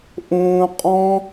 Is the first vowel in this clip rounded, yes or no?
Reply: yes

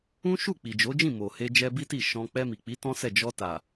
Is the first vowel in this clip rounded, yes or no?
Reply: yes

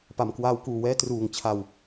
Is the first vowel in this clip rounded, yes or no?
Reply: no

